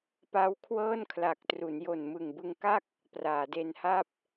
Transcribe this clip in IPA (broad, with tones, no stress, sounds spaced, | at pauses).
p a˦˥ w kʰ w ɤː˥˩ n kʰ l a˨˩ k̚ t r u˩˦ n j o˨˩ n m ɯ˨˩ ŋ b ɯ˧ ŋ k a˥˩ k̚ | p r aː˩˦ d e˧ n h a˥˩ p̚